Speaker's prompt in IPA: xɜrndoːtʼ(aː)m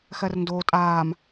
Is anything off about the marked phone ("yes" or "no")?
no